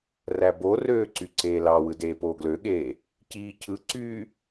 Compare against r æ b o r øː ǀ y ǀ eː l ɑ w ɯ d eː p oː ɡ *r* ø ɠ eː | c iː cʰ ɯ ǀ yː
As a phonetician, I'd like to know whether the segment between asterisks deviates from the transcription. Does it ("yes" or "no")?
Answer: yes